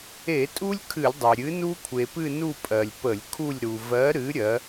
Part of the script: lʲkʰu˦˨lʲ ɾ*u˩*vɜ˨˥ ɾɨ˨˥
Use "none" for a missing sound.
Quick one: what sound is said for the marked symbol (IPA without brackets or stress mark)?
u˩